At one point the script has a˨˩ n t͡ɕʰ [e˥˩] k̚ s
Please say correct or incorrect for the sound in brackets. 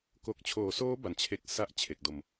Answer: incorrect